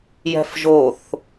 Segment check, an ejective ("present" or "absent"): absent